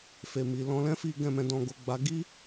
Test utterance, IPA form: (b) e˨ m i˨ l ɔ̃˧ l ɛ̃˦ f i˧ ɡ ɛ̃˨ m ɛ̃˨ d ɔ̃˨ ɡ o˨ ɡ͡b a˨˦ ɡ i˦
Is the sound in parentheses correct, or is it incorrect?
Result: incorrect